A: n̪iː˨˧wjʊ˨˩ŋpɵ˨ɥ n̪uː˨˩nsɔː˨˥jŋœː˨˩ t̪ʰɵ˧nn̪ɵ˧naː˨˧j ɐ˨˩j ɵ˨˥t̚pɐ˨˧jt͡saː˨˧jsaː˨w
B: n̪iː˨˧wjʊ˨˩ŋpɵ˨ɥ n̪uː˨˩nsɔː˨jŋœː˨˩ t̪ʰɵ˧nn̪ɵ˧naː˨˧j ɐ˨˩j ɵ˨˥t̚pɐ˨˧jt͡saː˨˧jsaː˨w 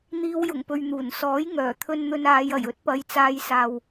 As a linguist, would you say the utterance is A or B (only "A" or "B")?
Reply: A